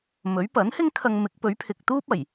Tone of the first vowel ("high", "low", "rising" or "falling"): rising